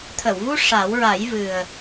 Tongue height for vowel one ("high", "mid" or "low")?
mid